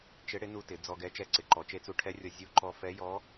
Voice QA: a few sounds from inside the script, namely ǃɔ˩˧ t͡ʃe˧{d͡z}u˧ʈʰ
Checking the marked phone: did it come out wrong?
yes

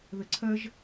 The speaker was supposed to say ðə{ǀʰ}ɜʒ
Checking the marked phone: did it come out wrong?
no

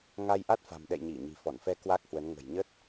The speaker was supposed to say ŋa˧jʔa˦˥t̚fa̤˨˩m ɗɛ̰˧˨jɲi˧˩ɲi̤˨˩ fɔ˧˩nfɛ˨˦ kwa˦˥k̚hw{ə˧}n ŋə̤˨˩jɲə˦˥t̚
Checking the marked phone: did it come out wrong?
yes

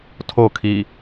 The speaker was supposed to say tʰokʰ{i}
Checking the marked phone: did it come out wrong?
no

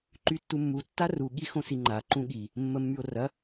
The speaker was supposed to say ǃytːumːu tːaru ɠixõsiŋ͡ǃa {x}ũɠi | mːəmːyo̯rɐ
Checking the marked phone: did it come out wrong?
yes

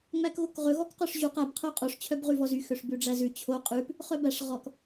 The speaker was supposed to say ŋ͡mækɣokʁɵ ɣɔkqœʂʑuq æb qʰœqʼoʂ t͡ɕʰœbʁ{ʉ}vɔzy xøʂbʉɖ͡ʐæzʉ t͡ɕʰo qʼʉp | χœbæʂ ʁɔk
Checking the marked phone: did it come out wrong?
no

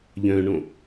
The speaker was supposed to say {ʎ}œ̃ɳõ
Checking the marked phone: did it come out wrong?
no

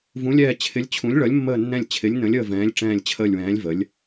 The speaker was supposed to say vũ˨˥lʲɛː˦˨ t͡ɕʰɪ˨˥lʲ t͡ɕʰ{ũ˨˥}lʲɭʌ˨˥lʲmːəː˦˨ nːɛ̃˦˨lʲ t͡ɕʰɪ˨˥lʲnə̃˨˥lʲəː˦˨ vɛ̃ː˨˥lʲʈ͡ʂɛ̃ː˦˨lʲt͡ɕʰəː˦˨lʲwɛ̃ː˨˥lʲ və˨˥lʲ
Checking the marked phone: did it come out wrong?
no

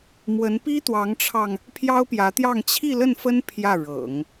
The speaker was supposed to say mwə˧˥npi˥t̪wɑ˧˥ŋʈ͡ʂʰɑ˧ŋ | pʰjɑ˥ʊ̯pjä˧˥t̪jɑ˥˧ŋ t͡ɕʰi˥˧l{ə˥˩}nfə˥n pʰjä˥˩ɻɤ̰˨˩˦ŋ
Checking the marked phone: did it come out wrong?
no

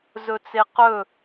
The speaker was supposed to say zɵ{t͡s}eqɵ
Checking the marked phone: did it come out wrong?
no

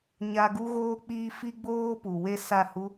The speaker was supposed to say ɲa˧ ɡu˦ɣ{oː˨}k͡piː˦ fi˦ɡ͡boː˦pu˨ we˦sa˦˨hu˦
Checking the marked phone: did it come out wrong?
yes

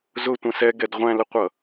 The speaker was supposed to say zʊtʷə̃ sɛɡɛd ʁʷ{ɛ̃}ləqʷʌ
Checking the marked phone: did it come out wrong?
yes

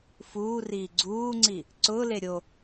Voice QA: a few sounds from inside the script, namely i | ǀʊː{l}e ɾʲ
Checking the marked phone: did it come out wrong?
no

